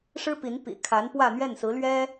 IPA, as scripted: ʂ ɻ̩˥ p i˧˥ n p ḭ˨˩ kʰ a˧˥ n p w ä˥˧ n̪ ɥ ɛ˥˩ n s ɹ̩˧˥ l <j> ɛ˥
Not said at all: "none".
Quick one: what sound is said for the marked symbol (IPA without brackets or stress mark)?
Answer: ɥ